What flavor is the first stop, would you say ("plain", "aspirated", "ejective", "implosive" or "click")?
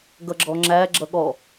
plain